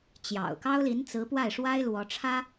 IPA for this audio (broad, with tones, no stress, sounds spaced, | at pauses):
t͡ɕ j ɑ̰˨˩ ʊ̯ k ɑ˥ ʊ̯ l i˧˥ n t͡s ɹ̩˧˥ p w a˥˩ ɪ̯ ʂ w a˥ ɪ̯ l w ɔ˧˥ ʈ͡ʂʰ ä˥